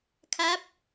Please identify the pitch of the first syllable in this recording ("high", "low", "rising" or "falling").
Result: falling